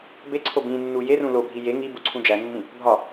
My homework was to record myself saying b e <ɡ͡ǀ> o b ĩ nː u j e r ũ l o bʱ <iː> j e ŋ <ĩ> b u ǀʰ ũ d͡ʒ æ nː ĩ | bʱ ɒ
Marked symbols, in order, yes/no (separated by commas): no, no, no